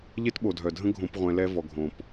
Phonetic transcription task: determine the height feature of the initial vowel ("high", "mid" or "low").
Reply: mid